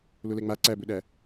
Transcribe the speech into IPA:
lʊlɛŋ͡ma ǀæbɵɗæ

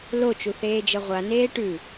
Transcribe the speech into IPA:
lot͡ʃu θeːd͡ʒɤʁʷa neːʈʉ

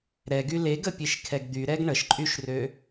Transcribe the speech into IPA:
ɾɛɡy leɡəpʲeʃkʰɛɡ d̪yɾɛɡ ɳəʃǃʼyʃrø

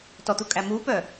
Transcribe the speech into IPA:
tɔt̪ukʼæ mupœ

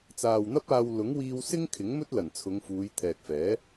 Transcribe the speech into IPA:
t͡saː˨wn̪ɐ˥p̚aː˧w lʊ˨˥ŋwiː˧w sɪ˥ŋ kʰɪ˨˥ŋmɵ˥t̚lɐ˨˩n t͡sʰʊ˨˧ŋfuː˨˧j t̪ʰɛː˨k̚fɛː˨˥

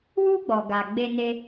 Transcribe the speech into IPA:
wu˦ ɡ͡bɔ˧ɡa˧ ɡ͡be˦ne˦

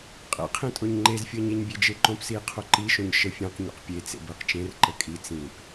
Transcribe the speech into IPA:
qʼḛqʰĩtʼoɲ ŋ͡ǃezfʲəːɲeɲbʲe d͡ʒeǃõpsiː qʰoǃiʃõɲ ʃəfʲẽq ɲo̰qpʲet͡sḛ bəːqt͡ʃẽr ǃəkʼi t͡sĩp

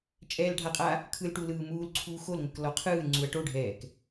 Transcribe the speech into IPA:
t͡ʃʼɛːlɖʱaqʼa | kʰɯlʈu lɯːmuːlǀʰuː xolŋʷɯk lɔqʰɯːlŋ͡ǀuɐ̯ ʈoɖʱɛːk

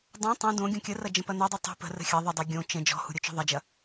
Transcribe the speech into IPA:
dˤõ tˤũ dõ ɡʲõkʲərɐ d͡ʒə̃pɐnudˤu tˤṳ pə̤rə̤ xʲɐ ðˤədˤo ɡʲõ t͡ʃə̃ d͡ʒɔ̤hṳ ɾʲot͡ʃɔ̤ðˤɐd͡ʒɐ

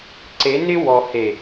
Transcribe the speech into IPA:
ǀe˨˦nɪ˦ wɔ˨ he˨

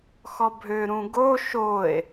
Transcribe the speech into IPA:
xɔbʱø ɾũɡo ʃoe̯

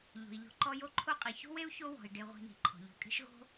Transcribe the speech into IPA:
ʎo̤˩i̯ʎɔ̤˨ǃɔ˦jo˥ ǃʰo˦qʼi˩ ço̤˥we˥u̯ço˦ wɔ̤˩i̯ ɖe˨ʁʷi̤˨ni̤˩ ǃʰɔ̤˩ʎo̤˨kʼe̤˦ʃ ɣo̤˥

